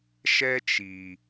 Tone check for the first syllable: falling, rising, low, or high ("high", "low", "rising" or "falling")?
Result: high